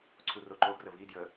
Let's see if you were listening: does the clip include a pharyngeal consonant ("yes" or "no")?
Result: no